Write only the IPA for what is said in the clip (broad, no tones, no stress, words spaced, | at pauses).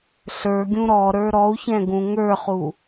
ɬə˞ɡʲũ ɾɔ ɾə˞ɾɔu̯çɛ̃ ɡũŋə˞χu